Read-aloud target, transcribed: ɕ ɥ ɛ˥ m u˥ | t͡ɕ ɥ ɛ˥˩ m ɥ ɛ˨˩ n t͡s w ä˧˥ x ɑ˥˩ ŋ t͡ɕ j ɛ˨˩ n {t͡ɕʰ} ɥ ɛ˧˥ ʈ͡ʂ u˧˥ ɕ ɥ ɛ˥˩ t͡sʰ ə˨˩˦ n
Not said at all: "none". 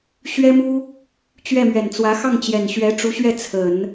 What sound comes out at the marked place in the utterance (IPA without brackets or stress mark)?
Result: ɕ